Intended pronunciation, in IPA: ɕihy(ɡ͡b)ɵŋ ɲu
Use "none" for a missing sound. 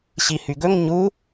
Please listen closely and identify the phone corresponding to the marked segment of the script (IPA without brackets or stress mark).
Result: ɡ